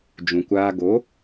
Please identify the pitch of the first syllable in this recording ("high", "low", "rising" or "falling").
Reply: low